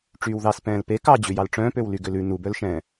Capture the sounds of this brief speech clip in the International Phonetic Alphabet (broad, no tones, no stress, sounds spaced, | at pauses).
ʈ͡ʂ yː w ð ɑ s p ɛ̃ː l p e k ɑ d͡ʑ ʉ j ɑ l ʈ͡ʂ œ̃ː p ø w l y ɡ ø l ʉ n u b œ l ʃ ɛ̃ː